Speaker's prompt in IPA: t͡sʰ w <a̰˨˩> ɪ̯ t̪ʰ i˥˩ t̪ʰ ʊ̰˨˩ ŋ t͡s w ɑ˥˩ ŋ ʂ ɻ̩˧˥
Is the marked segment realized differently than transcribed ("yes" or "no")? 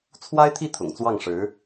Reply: yes